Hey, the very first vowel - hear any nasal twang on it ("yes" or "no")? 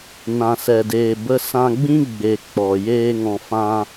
yes